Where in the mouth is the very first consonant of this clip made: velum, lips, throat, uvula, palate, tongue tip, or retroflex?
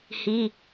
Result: throat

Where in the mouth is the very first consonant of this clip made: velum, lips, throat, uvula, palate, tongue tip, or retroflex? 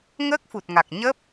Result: velum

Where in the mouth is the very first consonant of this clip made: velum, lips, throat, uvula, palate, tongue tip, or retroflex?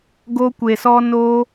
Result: velum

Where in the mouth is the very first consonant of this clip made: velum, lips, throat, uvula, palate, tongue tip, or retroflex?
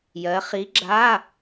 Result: palate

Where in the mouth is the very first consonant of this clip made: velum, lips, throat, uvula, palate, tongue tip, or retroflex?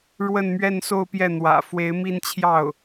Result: retroflex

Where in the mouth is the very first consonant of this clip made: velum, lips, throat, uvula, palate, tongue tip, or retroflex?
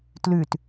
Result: tongue tip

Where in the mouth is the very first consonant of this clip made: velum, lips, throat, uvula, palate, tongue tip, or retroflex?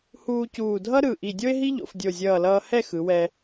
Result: throat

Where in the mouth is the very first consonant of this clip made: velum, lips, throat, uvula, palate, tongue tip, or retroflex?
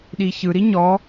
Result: tongue tip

